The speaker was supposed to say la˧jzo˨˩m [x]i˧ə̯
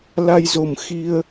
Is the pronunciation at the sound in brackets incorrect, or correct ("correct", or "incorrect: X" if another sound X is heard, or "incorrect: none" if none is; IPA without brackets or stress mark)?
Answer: correct